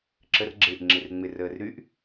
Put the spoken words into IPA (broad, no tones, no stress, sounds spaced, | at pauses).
ǁʰ ə r ɡ͡ǁ ɪː ʔ ŋ͡ǁ ɪ r ŋ͡m ɪ r əː r ɾ y ʔ